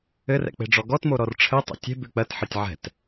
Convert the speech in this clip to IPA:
ɘ r ɛ̰ k͡p e̤ ɖ͡ʐ ɔ ɡ ɔ t m o ɾ ɔ r ʈ͡ʂʰ ɘ tˤ ɛ̰ tʲ e̤ b ʉ k͡p ɜ t ħ ɜ tʲ ʕ ɛ̤ t

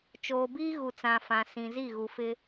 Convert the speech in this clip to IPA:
t͡ʃ oː˨ b iː˦ ɣ u˨ t͡s ã˨ f ã˨ s ĩ˨ z i˦˨ ɣ u˨ f ɪ˦

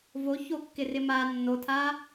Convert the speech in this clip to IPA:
v o ç o kː ɪ r ɪ m a nː o tʰ a

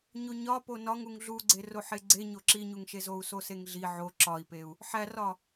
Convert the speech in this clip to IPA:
ɲ o ɲ ɒ p o n ɒ ŋ u ŋ ɮ u ɡ͡ǀ e r o ħ e ɡ͡ǀ e ɲ o ǁ i ɲ u ŋ ʃ e z o u̯ s o s e ŋ ɮ i ʕ o ǁ ɒ i̯ p e u̯ | ħ æ r ɒ

